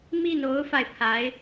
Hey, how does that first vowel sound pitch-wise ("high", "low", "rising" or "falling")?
falling